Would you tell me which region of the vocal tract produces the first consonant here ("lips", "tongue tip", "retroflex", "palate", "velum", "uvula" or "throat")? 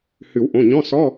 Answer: throat